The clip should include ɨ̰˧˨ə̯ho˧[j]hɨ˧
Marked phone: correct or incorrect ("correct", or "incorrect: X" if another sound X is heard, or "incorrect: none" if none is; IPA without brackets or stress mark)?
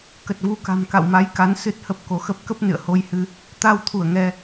correct